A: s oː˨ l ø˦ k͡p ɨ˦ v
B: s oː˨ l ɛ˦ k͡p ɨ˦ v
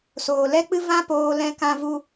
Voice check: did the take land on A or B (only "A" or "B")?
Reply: B